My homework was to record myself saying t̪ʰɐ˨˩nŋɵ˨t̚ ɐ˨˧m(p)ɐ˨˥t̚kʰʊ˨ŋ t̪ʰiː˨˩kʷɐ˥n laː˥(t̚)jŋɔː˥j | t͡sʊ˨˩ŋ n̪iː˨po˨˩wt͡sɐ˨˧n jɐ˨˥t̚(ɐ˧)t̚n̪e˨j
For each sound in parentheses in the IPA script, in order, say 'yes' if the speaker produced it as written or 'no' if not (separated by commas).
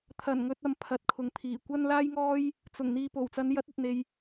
no, no, no